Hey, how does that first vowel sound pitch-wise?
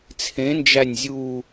rising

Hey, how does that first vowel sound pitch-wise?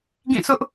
falling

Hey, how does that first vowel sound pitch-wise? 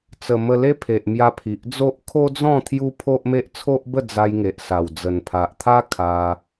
low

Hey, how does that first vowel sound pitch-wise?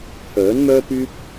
rising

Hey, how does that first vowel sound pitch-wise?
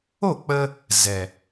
falling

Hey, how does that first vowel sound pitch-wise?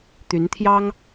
rising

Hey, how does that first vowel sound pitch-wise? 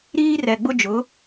high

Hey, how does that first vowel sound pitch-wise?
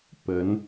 rising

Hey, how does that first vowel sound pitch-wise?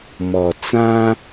low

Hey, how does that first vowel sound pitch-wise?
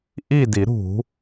falling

